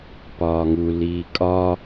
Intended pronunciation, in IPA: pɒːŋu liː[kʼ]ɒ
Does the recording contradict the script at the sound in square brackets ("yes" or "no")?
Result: no